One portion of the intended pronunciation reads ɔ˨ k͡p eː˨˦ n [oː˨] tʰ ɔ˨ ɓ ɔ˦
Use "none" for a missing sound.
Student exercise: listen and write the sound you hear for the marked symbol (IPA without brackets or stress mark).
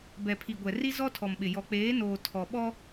oː˨